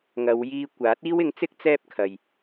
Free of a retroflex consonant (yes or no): yes